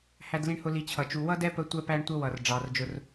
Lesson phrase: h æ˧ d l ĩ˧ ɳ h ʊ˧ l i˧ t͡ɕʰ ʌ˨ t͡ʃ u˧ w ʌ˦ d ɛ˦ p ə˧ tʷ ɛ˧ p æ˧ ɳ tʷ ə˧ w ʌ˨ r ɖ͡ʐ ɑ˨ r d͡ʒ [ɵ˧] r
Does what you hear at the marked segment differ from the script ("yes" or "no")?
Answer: yes